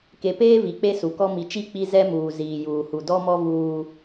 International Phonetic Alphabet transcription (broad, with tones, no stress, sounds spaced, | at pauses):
k e˨ p eː˦ v i˨ k͡p e˦ s u˨ k ɔ˦ m i˨ t͡ʃ i˦˨ k͡p i˦ z ɛ˦ m uː˨ z iː˨ j uː˨ h u˨ d ɔ˦ m ɔ˦ v uː˦